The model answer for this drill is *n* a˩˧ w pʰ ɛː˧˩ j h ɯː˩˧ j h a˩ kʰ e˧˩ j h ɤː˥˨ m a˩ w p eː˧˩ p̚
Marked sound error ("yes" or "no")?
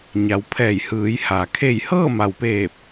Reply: yes